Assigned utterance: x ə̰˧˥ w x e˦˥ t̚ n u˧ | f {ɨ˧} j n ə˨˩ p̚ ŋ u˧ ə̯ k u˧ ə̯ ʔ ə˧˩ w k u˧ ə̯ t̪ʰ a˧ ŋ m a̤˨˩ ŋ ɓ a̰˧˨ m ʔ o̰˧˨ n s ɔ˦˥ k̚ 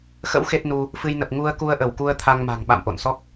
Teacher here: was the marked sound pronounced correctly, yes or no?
yes